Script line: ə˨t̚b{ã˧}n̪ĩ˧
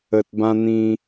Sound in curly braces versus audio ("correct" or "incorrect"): correct